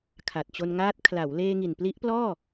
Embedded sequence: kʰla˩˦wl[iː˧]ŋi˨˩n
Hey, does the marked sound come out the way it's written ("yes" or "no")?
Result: no